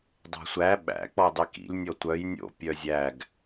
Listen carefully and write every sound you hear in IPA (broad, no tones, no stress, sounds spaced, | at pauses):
dˤ æ̤ sʷ æ ɓ æ̰ k͡p ɔ dˤ i k ḭ lʲ nʲ ɔ tʷ œ j nʲ o̰ pʲ œ zʲ æ ɡ